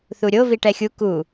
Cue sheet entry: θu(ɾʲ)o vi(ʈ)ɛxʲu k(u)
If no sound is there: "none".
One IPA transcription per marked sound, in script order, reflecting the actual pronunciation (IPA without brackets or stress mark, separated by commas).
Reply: ɾʲ, ʈ, u